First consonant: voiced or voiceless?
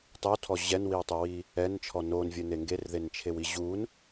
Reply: voiceless